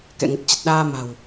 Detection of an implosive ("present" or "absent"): present